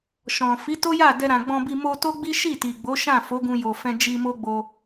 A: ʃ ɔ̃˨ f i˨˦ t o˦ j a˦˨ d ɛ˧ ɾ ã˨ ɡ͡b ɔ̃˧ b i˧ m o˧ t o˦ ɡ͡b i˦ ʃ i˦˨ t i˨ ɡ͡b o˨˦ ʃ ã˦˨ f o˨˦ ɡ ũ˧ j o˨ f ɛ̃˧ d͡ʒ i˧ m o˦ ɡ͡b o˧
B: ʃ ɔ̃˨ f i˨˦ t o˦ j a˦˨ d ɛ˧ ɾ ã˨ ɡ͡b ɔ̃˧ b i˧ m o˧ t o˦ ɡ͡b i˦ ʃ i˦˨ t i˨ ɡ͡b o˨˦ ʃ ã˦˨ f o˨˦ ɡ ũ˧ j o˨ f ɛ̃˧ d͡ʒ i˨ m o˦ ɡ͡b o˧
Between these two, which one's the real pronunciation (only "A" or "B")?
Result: A